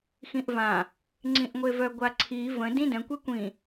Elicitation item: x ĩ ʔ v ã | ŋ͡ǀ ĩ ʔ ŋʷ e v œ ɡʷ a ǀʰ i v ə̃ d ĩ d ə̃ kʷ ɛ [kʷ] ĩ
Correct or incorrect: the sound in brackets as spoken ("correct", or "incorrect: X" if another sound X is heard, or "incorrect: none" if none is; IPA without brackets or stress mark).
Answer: correct